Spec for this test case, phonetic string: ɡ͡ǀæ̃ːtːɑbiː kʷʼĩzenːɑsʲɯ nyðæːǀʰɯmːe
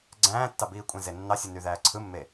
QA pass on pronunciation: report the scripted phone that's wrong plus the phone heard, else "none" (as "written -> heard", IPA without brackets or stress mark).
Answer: none